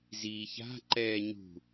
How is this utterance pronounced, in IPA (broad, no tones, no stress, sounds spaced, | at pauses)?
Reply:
z iː ç a̤ ǃ ɛː ɲ ṳ